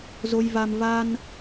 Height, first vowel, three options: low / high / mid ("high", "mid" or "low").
mid